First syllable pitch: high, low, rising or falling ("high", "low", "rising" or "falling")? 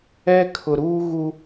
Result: high